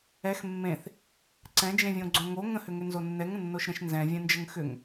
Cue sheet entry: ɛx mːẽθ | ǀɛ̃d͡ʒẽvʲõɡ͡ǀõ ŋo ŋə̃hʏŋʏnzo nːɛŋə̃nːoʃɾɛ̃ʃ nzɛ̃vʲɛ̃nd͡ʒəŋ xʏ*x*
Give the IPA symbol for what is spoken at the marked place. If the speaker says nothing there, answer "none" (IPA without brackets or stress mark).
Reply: ŋ